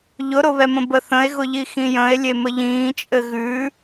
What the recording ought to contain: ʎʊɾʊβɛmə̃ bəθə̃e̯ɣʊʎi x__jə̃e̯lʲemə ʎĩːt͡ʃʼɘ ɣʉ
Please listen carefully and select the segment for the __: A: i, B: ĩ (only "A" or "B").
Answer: B